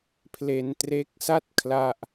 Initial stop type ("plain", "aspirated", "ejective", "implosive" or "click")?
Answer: aspirated